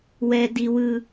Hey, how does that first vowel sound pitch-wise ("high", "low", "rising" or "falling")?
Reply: high